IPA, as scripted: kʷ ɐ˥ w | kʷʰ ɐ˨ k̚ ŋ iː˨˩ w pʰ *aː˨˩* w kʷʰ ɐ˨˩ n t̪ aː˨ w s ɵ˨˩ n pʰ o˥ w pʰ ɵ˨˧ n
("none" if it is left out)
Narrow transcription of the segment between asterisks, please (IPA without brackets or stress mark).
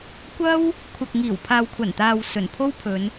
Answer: aː˨